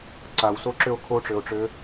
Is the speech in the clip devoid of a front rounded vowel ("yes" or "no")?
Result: no